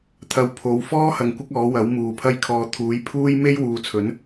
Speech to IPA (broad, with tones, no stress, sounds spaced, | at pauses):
t̪ʰ ɐ˧ w pʰ o˨˧ w f ɔː˥ h ɐ˧ ŋ kʷ ɪ˥ k̚ ɔː˨˥ w ɐ˨˥ w m uː˨ pʰ ɐ˥ j kʰ ɔː˧ t̪ʰ uː˨˥ j pʰ uː˥ j m e˥ j w uː˨˧ t͡sʰ ɵ˨˥ n